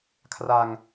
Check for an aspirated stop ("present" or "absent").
present